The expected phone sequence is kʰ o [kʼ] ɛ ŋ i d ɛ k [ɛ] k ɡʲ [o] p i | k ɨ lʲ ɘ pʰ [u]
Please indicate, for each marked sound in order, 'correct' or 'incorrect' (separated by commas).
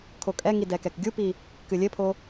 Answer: correct, correct, incorrect, incorrect